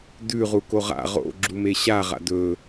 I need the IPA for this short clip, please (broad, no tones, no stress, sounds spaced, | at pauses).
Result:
d ʉ ʁ u k o ʁ a̰ ʁ o̰ ɡ͡ǁ u m e ɕ a ʁ a̰ d ɵ